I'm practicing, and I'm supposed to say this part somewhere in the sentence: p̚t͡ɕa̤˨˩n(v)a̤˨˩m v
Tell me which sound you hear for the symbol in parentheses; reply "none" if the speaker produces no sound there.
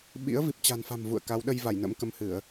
f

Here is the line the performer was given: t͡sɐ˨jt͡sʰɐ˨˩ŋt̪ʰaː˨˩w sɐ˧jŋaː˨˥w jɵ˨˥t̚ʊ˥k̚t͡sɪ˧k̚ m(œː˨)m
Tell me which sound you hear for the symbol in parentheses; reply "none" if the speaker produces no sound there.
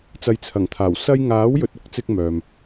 œː˨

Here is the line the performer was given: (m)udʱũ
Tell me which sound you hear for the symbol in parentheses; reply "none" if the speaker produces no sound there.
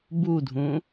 b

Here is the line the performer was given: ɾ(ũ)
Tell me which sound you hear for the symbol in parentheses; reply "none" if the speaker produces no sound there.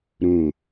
ũ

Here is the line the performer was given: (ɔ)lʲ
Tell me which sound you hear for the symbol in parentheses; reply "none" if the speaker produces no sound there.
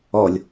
ɔ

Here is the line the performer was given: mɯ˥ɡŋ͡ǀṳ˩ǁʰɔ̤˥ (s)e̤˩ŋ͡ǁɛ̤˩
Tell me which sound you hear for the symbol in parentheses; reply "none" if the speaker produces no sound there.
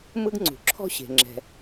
ɕ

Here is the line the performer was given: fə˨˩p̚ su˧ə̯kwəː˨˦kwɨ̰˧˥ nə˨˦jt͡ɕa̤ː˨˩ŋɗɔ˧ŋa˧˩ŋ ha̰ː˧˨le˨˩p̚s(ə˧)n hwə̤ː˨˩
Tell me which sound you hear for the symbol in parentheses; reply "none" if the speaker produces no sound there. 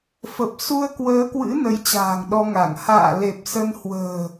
ə˧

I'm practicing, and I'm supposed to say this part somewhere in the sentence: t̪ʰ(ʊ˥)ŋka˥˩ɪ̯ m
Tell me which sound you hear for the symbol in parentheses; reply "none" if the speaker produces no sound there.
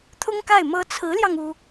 ʊ˥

